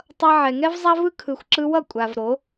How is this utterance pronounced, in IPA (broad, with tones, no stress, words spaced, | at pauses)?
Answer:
tˤʌ˧ ʕɛ˨ŋɛ˦vzˤa˦vɯ˦ kʰɯ˨xʷǁɯ˧wʌ˦˨ kʷʼa˨v ɾo˨˦